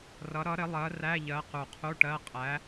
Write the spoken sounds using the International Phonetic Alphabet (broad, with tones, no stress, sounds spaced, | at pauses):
r ʌ˨˥ ɾ ʌ˨˥ ɾ ɪ˨˥ lˠ ɜ˨˥ r æ˧˥˧ ʎ ɜ˨˥ q u˨˩ qʰ u˧˥˧ ʈ ɜ˧˥˧ qʼ æ˨˥